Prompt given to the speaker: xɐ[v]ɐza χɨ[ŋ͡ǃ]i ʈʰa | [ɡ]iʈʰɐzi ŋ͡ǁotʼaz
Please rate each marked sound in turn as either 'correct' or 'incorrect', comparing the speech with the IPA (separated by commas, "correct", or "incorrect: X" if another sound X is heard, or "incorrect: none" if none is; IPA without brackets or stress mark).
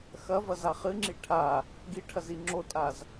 correct, incorrect: ŋ͡ǁ, correct